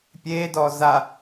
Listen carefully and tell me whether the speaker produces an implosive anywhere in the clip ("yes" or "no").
no